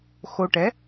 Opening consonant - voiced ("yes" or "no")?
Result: no